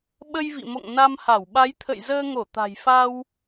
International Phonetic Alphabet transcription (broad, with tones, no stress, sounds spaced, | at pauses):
ɓ ə˧ j v ḭ˧˨ m o̰˧˨ ŋ n a˧ m h a˧˩ w ɓ a˨˦ j t̪ʰ ə̰˧˨ j z əː˧ ŋ o˧˩ t̪ a̤˨˩ j f a˧ w